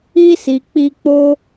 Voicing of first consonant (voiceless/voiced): voiceless